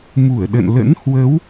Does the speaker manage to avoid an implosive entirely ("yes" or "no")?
no